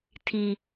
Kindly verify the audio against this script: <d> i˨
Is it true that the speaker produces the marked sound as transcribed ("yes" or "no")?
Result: no